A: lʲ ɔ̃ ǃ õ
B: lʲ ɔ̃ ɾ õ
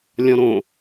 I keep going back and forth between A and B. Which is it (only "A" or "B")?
B